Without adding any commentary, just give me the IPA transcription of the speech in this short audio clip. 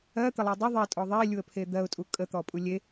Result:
ɜt̪əlˠe dˤə ðˤetʼɔ ðˤelʲuə̯pʰe d̪ɜʊ̯tʼu kʼət̪ɔpʼu lʲe

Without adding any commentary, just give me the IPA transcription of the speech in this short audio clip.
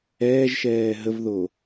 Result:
ɛːʒʃɛː ɦəvðo

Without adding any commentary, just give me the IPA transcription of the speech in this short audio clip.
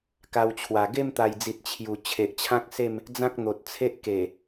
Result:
ka˧wt͡ɕʰwa˨˩ ɡe˥˧mt̪a˨˩jd͡zi˨t̚ t͡ɕʰju˨˩ t͡ɕʰe˨ʔt͡ɕʰã˦k̚se˥˧m | d͡zã˦k̚n̪o˨t̚t͡sʰe˦ʔke˨˩

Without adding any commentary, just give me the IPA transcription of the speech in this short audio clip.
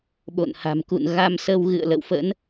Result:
ɓo̰˧˨nha̤˨˩mkṵ˧˨n ɣa˧msə˧w ɣɨ̰˧˨ə̯lə̰˧˨wfə̰˧˥n

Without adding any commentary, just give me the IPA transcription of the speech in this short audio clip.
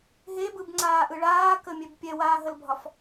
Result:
ɦebɯbŋ͡ǀaːʔɯ ɭaːkəmʲɛb pʲɛwaːɦəlbʱɒf

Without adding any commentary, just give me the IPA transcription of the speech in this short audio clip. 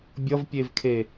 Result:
bʲʌvpʲevkʰe

